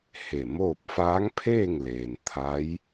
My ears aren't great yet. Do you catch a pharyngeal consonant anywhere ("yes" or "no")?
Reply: no